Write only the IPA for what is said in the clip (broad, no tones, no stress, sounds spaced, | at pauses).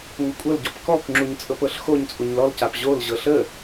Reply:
ŋʷ ə kʷʼ ɤ l ɟ ɔ p k ɔ k ŋ͡ǁ u ɲ t͡sʼ ɤ p ɤ ɬ x o ɲ t͡sʼ u ɲ l ɔ l c a p ʑ o l ʑ ɤ ɬ ə